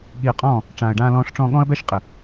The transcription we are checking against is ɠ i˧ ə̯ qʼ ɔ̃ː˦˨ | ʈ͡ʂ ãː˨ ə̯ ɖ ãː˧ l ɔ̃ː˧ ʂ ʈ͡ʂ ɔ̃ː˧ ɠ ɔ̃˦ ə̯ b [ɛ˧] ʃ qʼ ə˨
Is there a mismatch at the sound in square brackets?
yes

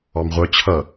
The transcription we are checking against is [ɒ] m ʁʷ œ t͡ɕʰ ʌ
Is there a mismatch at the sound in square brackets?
yes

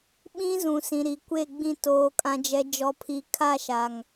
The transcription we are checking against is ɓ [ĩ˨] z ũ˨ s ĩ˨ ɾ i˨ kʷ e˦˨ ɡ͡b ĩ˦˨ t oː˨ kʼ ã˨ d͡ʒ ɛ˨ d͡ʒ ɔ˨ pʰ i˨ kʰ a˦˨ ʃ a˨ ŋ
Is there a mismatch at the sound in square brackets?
yes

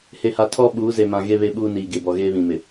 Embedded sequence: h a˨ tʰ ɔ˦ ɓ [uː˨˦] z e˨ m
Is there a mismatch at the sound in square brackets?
no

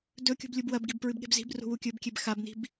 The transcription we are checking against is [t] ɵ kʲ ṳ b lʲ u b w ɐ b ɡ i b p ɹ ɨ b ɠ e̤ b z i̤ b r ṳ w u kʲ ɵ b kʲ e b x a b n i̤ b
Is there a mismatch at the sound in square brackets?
yes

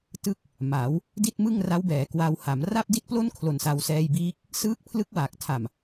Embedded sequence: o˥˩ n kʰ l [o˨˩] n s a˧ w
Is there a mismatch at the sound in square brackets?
no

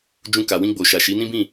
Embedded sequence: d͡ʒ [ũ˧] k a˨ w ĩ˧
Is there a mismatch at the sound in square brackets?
no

